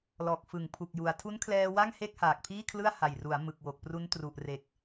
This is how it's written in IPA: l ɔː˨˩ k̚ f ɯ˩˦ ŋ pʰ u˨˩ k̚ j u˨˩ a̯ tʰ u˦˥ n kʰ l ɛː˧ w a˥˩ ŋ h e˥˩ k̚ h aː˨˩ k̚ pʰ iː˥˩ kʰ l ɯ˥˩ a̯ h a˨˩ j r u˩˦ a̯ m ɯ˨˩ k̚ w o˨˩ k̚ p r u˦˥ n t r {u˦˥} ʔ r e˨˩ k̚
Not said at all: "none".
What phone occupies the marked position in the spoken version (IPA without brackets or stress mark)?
u˨˩